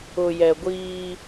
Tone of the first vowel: low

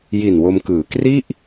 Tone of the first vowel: low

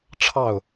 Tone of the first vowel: falling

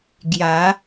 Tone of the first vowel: rising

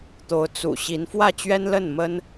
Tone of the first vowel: rising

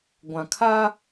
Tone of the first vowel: low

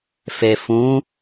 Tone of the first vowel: low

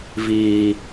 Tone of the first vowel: low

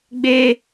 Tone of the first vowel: high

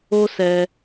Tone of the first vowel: high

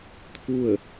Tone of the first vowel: falling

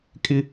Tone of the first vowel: high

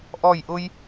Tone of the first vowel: falling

